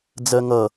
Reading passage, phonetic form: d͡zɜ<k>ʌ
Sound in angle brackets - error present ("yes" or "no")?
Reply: yes